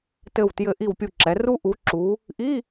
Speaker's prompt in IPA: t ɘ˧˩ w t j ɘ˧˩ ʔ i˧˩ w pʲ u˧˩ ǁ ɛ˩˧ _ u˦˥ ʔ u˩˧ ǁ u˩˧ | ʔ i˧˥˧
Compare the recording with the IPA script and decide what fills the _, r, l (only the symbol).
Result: r